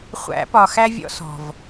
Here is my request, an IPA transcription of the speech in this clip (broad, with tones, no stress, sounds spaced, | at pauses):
χʷ æ̰˨˩˦ p ɒ˨˩ x æ˥ vʲ ɔ̰˥ s ɔ̤˨˩ v